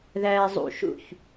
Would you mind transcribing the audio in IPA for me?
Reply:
ð æː zˤ ṵ ʃ ṵ ç

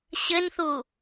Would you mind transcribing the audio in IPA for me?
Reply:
ɕ ɘ n θ u

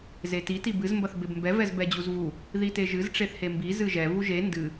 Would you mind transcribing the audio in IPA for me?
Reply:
z e t i t i b ɨ z m b ɐ θ b e b m b ɛ v ɛ z b ɛ d͡ʑ u z v u | ð i t e ʒ ɨ z ʈ͡ʂ e θ h e m b i z ɨ ʒ ɛ v u ʒ e n d ɨ

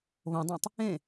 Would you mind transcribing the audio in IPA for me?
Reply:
β õ dˤ õ tˤ | ẽ

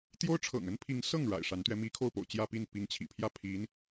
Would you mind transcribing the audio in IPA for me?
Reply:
t̪ j o˥ ʊ̯ ʈ͡ʂʰ ɤ̰˨˩ ŋ ə˥ n pʰ i˧˥ ŋ s ɤ˥˩ ŋ ɻ a̰˨˩ ɪ̯ ʂ a˧˥ n t̪ ɥ ɛ˧˥ m i˧˥ kʰ o˥˩ ʊ̯ p o̰˨˩ ʊ̯ t͡ɕ j ä˥˧ p i˥˩ n p i˧˥ ŋ t͡ɕʰ ḭ˨˩ pʰ j ä˥˩ pʰ i˧˥ n

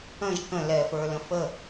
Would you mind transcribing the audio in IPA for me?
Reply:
ə̃ ʒ k ə̃ l ɛ f ə˞ l ə̃ f ə

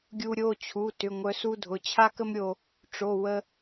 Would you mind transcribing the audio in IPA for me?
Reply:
ɡʲ u˧ ɾʲ o˩˧˩ t͡ɕʰ u˩˧˩ t ʏ˩˧˩ ŋʷ œ˧ s u˥ dʱ ʊ˩˧˩ t͡ɕʰ a˥ k ə˥ m ɾʲ o˧ | ʈ͡ʂ o˩˧˩ w ə˧

